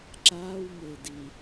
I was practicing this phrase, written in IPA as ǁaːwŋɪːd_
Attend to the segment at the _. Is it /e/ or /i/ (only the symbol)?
i